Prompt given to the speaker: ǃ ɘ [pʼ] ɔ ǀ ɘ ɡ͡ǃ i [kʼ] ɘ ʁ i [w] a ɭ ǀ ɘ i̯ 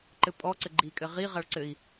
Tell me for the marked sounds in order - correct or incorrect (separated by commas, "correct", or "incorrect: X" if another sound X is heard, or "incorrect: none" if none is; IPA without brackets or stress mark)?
correct, correct, incorrect: ʁ